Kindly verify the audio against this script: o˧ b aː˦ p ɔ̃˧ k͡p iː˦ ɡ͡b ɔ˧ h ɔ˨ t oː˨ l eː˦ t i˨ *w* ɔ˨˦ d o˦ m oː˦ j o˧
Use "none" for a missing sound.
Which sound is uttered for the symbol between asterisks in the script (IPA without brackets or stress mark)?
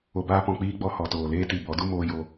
b